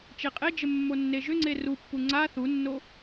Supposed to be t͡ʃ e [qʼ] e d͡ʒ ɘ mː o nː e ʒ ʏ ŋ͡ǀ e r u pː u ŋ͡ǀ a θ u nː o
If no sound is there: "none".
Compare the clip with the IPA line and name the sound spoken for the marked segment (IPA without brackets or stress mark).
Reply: qʼ